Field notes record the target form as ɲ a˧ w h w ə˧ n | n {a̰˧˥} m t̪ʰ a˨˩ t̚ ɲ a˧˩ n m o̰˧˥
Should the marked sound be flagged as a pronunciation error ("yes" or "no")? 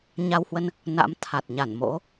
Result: no